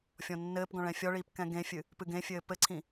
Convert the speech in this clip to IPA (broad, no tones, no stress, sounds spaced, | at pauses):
fʲ ɔ̃ nː ɘː p ɡ ɔ̃ ɭ ɛ̃ fʲ ɔ ɭ iː p k ɛ̃ ɡ ẽ fʲ ɨ | p ɨ ɡ ẽ fʲ ɘː p ɘ ǀʰ ĩ